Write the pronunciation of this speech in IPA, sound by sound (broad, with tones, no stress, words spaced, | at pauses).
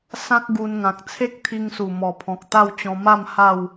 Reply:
sã˦k̚ɡu˧nŋã˨k̚ t͡sʰe˦k̚t̪ʰi˧ŋsu˨˩ mɔ˨˩pʰɔ̃˨k̚t̪a˥˧w t͡ɕɔ̃˧ma˥˧m ha˥˧w